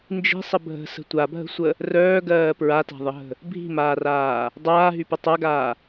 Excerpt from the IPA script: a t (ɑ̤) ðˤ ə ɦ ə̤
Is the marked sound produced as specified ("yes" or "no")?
no